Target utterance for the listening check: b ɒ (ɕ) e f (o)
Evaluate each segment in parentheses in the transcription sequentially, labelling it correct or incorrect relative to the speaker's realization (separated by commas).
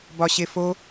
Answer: correct, correct